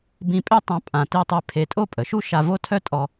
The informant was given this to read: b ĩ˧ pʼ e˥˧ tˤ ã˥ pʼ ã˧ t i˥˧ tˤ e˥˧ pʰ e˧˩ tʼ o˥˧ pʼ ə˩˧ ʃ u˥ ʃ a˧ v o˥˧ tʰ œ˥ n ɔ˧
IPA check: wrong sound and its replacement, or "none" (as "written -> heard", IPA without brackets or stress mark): n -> tʼ